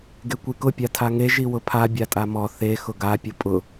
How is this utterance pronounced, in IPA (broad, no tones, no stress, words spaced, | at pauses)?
ɡekʷikʊ pʲatʰaŋe ʒiwʊpʰa bʲatʼamɔ θe xʊɡa pʲʊpʼʊ